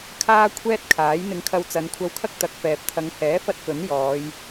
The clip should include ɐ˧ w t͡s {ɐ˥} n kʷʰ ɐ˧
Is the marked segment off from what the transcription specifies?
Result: yes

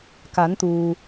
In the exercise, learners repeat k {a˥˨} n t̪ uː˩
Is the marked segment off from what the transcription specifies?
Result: yes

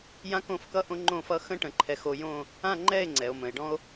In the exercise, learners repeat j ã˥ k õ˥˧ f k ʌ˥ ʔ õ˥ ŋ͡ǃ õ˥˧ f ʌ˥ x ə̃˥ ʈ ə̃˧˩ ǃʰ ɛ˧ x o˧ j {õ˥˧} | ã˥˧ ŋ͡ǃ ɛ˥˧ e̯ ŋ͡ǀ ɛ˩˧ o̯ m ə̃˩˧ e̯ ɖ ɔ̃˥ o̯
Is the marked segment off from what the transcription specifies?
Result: no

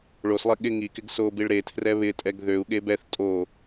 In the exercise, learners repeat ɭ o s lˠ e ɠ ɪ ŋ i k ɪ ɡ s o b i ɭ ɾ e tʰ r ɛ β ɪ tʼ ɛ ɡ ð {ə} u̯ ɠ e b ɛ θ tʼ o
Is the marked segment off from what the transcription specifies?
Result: yes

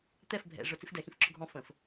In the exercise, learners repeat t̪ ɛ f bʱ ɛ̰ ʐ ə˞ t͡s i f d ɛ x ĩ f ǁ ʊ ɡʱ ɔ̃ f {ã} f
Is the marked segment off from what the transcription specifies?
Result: yes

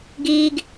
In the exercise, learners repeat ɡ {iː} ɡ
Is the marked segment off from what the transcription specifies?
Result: no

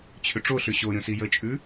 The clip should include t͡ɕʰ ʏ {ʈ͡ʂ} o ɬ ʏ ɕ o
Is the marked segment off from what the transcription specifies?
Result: no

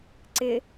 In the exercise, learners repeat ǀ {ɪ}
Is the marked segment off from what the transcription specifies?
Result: no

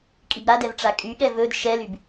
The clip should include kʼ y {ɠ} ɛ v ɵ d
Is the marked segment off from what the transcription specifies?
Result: no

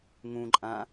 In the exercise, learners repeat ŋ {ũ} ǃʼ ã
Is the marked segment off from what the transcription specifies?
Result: no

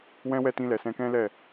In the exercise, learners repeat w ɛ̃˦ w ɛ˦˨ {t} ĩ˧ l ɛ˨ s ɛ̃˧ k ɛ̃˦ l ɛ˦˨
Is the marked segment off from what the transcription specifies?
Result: no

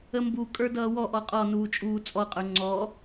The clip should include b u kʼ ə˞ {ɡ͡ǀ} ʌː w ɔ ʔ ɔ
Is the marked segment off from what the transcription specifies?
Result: yes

